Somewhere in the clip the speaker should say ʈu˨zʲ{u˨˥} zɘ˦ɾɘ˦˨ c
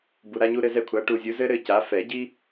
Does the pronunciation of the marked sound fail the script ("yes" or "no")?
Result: no